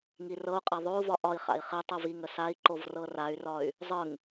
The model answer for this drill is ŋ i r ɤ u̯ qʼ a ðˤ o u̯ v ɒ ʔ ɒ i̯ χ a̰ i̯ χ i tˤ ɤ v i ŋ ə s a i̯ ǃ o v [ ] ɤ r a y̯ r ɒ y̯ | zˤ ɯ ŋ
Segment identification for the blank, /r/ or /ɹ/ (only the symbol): r